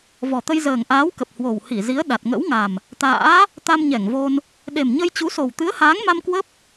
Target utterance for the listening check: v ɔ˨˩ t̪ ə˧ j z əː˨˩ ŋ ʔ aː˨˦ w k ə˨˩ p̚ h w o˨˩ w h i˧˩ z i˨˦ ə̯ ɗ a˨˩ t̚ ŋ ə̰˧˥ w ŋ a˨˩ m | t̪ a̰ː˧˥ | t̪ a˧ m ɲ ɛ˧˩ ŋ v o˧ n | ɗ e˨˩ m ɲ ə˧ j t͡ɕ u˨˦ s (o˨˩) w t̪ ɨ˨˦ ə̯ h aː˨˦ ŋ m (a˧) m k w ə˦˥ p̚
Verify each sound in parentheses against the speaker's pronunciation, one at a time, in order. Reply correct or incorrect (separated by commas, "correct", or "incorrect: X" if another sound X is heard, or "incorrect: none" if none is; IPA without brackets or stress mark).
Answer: correct, correct